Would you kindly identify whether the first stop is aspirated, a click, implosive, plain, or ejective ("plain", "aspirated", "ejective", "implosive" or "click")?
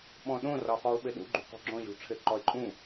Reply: implosive